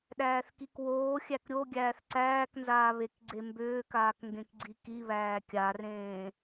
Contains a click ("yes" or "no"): yes